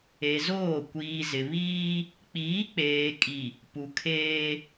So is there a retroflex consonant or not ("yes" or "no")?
no